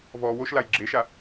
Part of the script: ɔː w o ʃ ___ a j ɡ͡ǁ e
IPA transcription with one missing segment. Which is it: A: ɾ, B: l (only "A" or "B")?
B